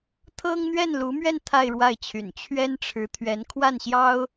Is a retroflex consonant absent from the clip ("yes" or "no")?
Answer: no